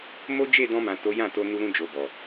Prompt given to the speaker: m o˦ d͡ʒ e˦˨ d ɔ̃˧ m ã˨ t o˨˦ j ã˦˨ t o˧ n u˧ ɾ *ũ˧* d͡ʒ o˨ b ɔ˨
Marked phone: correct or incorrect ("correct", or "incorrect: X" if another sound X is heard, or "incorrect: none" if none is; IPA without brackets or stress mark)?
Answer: correct